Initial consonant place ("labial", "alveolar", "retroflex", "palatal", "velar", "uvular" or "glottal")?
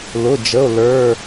alveolar